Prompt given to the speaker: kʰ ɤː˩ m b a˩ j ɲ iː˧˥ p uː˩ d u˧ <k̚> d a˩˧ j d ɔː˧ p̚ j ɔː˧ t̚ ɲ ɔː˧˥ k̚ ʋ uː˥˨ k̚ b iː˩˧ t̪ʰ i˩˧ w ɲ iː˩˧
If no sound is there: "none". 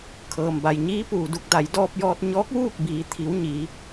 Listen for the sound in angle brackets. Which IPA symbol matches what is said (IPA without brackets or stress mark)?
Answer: k̚